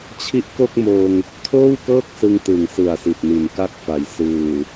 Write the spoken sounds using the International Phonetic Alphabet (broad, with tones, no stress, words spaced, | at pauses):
t͡ɕʰi˦˥ʔko˥˩k̚moː˧ŋ | tʰoː˥˩wkɤː˥˩k̚sɯ˧ŋ tɯ˨˩ŋsɯ˨˩a̯ si˨˩t̚ni˨˩nka˦˥k̚fa˨˩j sɯː˨˩